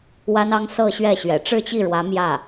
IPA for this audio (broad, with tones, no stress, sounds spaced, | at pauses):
w a˥ n ɑ˥ ŋ s ɤ˥˧ ɕ ɥ ɛ˥˩ ɕ ɥ ɛ̰˨˩ ʈ͡ʂ ɻ̩˥˧ t͡ɕ i˥˩ ɻ w ä˧˥ m j ä˥˩